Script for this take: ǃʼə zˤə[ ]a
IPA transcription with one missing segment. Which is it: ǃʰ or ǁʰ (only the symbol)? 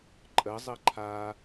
ǃʰ